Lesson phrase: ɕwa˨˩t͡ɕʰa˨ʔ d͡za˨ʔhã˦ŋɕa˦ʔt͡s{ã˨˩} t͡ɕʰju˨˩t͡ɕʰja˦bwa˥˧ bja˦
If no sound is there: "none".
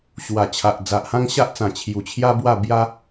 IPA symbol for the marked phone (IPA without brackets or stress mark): ã˨˩